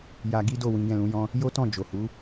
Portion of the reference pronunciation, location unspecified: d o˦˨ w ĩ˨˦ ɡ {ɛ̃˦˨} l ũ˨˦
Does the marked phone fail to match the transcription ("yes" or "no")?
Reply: no